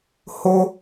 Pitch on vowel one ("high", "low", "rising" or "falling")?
high